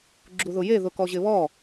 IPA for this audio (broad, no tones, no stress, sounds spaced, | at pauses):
ɡ͡ǁ u ð ʊ j e ð ʊ k ɔ ʑ ɪ β ɔ